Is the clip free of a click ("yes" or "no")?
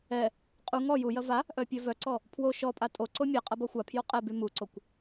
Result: no